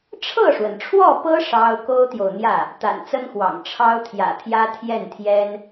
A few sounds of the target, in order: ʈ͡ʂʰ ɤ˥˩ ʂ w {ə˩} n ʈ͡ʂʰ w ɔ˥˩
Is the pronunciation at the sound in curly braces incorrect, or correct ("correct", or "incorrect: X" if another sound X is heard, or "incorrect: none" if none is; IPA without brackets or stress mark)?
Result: correct